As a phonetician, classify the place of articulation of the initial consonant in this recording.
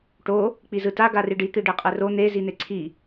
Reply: retroflex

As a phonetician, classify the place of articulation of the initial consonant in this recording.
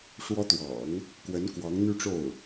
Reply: retroflex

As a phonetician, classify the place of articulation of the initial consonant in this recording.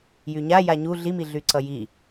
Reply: palatal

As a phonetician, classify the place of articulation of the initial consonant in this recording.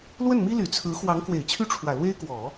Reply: alveolar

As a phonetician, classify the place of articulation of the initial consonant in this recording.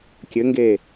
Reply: velar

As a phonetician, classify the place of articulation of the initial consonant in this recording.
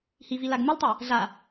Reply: glottal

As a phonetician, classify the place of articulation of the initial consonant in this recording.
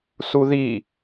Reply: alveolar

